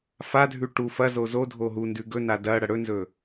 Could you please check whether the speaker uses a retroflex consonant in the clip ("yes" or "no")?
yes